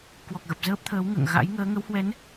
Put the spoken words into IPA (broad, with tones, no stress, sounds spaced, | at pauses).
k w ɔ˨˩ k̚ ɣ ə˨˩ p̚ z əː˦˥ p̚ t̪ʰ əː˨˦ w ŋ ə̰ː˧˨ ŋ ɣ a̰˧˥ j ŋ əː˨˦ ŋ ə˨˦ w h w ɛ˨˦ n